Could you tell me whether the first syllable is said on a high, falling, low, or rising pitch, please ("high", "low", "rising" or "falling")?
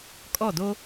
falling